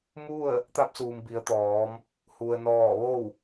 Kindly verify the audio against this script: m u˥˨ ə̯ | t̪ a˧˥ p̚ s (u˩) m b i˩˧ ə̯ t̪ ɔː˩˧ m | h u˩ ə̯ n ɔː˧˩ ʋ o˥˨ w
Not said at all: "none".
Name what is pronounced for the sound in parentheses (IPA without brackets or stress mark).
uː˩